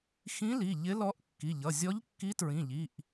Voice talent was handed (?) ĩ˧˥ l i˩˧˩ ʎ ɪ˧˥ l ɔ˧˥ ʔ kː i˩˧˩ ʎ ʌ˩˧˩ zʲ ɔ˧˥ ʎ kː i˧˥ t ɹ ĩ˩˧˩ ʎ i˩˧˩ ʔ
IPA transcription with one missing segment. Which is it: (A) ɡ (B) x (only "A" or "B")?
B